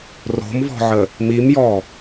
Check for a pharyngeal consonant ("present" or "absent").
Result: present